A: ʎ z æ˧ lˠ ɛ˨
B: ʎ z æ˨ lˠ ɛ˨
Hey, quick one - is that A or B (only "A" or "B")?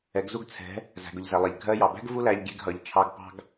B